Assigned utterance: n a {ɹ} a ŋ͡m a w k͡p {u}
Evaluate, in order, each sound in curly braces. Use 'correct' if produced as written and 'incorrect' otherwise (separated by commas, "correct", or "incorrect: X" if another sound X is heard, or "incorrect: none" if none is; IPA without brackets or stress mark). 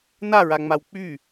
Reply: correct, incorrect: y